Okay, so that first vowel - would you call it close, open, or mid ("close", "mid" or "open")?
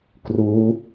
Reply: close